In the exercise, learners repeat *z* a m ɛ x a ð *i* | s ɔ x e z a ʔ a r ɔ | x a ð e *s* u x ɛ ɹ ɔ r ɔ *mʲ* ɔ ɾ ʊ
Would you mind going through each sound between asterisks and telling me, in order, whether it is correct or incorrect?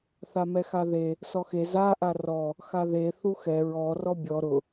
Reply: incorrect, incorrect, incorrect, incorrect

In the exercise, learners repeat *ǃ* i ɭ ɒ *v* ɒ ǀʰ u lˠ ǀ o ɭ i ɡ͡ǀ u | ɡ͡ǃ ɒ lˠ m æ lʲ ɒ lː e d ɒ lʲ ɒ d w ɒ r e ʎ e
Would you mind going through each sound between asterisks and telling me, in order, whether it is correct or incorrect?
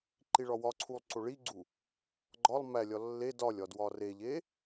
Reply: correct, incorrect

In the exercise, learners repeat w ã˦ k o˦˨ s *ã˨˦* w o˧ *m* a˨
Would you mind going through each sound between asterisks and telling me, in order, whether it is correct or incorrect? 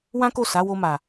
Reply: incorrect, correct

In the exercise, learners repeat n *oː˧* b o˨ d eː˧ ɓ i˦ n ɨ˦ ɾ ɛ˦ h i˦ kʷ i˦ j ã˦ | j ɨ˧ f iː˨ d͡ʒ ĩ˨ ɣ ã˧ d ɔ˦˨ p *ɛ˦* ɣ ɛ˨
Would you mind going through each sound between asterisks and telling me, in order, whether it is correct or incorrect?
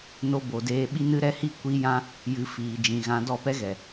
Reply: incorrect, correct

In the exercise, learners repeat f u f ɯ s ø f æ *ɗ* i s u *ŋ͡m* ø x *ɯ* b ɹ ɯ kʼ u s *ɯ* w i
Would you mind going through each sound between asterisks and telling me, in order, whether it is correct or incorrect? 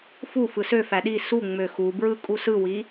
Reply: correct, correct, incorrect, correct

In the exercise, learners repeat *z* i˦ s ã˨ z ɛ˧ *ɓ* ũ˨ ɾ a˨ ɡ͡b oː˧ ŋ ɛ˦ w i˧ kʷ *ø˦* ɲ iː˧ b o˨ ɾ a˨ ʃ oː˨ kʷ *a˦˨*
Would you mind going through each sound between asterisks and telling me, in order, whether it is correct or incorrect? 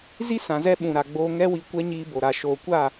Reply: correct, correct, incorrect, correct

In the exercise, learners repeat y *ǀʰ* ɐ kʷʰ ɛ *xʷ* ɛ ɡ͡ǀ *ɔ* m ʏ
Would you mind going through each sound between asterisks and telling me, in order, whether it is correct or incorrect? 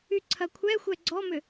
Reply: correct, correct, correct

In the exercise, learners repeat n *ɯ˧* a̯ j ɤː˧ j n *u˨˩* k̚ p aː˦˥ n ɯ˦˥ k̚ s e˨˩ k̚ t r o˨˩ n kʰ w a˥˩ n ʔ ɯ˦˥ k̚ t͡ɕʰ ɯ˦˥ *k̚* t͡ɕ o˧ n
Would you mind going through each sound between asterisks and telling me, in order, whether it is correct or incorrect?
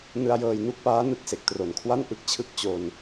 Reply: correct, incorrect, correct

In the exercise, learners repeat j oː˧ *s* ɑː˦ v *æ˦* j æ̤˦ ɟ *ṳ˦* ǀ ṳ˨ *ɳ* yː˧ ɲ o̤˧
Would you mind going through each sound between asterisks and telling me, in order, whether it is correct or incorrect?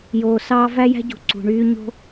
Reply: correct, correct, incorrect, correct

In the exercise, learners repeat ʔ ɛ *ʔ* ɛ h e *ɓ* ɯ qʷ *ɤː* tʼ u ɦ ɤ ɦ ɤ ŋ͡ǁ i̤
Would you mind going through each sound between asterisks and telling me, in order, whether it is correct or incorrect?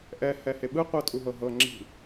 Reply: incorrect, correct, correct

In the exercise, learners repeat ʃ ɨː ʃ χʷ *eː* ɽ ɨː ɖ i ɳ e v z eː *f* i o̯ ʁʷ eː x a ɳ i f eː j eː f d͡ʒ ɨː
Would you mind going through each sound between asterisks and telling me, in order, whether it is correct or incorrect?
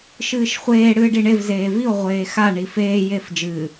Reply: correct, incorrect

